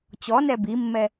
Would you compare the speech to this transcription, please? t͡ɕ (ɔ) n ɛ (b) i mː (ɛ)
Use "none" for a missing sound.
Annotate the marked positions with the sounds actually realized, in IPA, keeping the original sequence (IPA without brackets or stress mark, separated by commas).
ɔ, b, ɛ